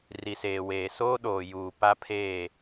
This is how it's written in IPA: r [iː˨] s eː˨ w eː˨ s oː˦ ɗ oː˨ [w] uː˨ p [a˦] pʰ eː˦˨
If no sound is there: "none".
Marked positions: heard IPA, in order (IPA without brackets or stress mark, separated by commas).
i˨, j, a˦